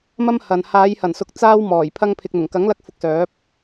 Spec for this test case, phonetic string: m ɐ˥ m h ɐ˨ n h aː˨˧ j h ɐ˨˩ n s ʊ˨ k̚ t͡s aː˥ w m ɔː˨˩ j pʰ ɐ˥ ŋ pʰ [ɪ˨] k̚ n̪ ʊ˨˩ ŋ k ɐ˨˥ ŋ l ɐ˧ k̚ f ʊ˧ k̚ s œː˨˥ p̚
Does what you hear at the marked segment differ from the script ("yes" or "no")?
yes